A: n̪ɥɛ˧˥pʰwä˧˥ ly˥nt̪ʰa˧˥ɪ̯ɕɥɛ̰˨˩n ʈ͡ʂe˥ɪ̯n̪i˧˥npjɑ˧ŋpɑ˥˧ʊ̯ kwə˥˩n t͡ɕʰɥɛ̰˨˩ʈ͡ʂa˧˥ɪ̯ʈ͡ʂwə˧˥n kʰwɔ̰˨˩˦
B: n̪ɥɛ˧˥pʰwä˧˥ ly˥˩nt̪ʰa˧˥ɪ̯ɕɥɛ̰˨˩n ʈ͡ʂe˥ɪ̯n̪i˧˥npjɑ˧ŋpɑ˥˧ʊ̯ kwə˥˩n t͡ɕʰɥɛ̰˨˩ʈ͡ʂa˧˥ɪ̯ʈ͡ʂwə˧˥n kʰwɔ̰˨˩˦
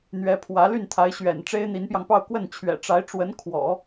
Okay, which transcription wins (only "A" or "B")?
B